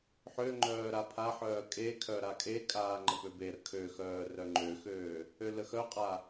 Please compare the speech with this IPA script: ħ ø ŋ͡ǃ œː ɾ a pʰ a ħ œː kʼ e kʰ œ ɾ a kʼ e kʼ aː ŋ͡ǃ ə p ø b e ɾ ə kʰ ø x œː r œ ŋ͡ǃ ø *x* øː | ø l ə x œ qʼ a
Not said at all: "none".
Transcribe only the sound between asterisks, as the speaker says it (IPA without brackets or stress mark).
x